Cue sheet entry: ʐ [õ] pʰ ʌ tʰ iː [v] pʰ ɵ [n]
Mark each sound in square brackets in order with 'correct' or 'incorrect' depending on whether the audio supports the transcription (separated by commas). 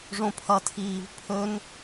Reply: correct, correct, correct